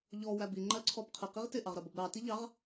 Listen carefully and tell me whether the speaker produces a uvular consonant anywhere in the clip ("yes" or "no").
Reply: yes